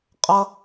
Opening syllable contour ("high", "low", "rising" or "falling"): high